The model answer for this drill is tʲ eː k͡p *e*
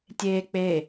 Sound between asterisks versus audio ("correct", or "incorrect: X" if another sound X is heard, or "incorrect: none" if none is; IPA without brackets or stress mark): correct